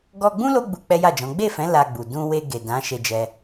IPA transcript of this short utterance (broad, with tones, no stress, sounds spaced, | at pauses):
ɡ ɔ˧ ɡ͡b ũ˦ l o˦ ɡ͡b u˧ k͡p ɛ˦ j a˦˨ d͡ʒ ɔ̃˨˦ ɡ͡b e˦˨ f ɛ̃˨˦ l a˧ ɡ͡b u˨ d ũ˧ w e˧ ɡ e˨ d ã˨˦ ʃ e˧ d͡ʒ ɛ˧